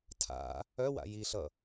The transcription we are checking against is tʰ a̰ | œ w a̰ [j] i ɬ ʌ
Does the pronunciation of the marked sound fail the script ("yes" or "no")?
no